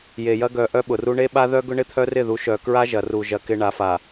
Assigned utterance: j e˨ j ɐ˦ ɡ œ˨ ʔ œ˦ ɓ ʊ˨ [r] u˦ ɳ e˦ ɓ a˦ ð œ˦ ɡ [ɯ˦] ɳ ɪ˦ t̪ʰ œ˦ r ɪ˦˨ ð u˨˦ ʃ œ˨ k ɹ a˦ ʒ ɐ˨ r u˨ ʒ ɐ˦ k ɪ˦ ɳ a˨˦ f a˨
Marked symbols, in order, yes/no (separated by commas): yes, no